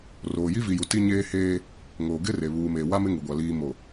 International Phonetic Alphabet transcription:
r oː˨ j i˦ v i˨ j u˨ t i˦ ɲ eː˦ h eː˦ | ŋ oː˨ ɡ ɪ˦ r e˨ β uː˨ m eː˨ w a˦ m ɪ˦ ŋ u˨ ɡʷ a˨ l iː˨ m o˨

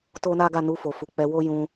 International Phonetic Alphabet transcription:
t o˦ n a˦ ɡ a˦˨ n u˧ f o˨ f u˨ k͡p ɛ˨˦ w o˦ j ũ˧

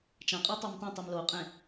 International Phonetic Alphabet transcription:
t͡ʃ ã qʼ a tˤ a m t ẽ tˤ e m l o qʼ ẽ

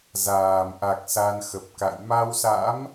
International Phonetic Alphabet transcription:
z aː˨˩ m ʔ a˨˩ k̚ s a˧ n x ə˨˩ p̚ k a̰˧˨ j m a˧ w s a̰˧˥ m

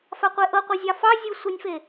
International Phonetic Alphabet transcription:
f a qʷ e ʔ ɤ qʷ ɤ zʲ ɑ f ɑ zʲ ɯ sʷ ɯ nʲ f e

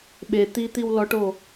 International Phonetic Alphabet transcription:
ɓ e t̪ i t̪ i w l ɔ ʈ o

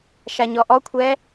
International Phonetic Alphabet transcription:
ʃ a ɲ ɔ ʔ ɔ kʷʰ ɛː

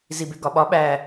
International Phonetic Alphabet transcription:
z i b e ɡ ɒ ɓ ɒ ɓ æ

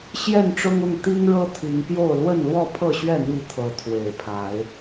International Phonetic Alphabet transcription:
ɕ j ɛ˥˨ n ʈ͡ʂ ʊ˦ ŋ ʊ˥˨ ŋ t̪ i˦ ŋ ɻ ɤ˦ t̪ʰ i˨˦ ŋ p j o˥˨ ʊ̯ l w ə˥˨ n l w ɔ˥˨ pʰ ɤ˥˨ ɕ ɥ ɛ˥˨ n̪ i˥˨ t̪ʰ ɤ˨˦ t̪ʰ w e˨˩ ɪ̯ pʰ a˨˦ ɪ̯

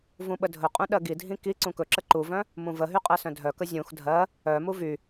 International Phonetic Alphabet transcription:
v ũ ɓ ə dʱ ɵ qʼ ũ ɗ ɜ ɡ i dʱ ĩ k i ǀ ũ k ɵ ǁ ə ǃ u v œ̃ | m ũ v ə ɦ y qʼ ɜ s œ̃ dʱ œ k ə zʲ ũ x dʱ ɜ | œ m u v y

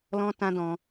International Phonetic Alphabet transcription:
l ɔ̃˦ t ã˦ d ɔ̃˧

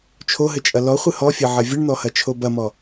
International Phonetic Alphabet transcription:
t͡ʃʰ o ɦ ɘ t͡ʃʼ ɐ l ɔ χʷ ɨ h ɔ fʲ ɐ ʕ ɐ vʲ ɨ ɳ n̪ ɔ h ɐ t͡ʃʰ o b ɐ m ɔ

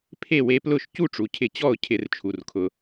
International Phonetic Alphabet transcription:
pʰ e˥˨ w e˧˥ p l ʊ˥˨ ʃ c u˥˨ ʈ͡ʂ u˩ cʰ ɪ˧˩˧ t͡ɕ ɔ˥˨ ʊ̯ cʰ ɪ˧˩˧ r t͡ʃʰ u˩ r kʰ ʊ˩

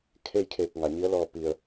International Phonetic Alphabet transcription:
kʰ e˥˨ j kʰ eː˧˩ k̚ ŋ a˩ ɲ i˧˥ ə̯ l ɔː˧˩ p i˩ ə̯

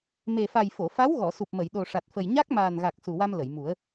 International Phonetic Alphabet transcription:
m e˨˩ f a˨˩ j f o˨˩˨ f a˧˥ w ɣ ɔ˨˩˨ s u˨˩ p̚ m ə˨˩˨ j ɗ o˨˩ ʂ a˨˩ t̚ f ə˨˩ j ɲ a˦˥ k̚ m aː˨˩ n ɣ a˨˩ k̚ s u˨˩ w a˧ m l ə˨˩˨ j m u˨˩˦ ə̯

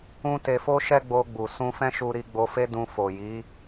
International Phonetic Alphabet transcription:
ũ˦ t e˧ f o˦ ʃ ɛ˦ ɡ͡b o˧ ɡ͡b u˨ s ũ˧ f ɛ̃˦ ʃ u˧ ɾ i˧ ɡ͡b o˧ f e˦ d ũ˧ f o˨ j i˨˦

